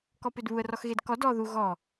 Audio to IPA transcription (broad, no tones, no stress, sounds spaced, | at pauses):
k ɔ p ʏ d β u ə̯ r ɔ x ɣ e d k ɔ d ɔ ð u ɣ ɔ